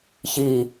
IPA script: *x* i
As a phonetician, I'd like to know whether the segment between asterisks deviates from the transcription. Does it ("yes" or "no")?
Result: yes